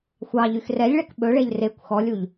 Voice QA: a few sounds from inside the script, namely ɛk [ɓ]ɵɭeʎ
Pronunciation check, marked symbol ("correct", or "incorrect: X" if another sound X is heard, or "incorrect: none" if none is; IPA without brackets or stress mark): correct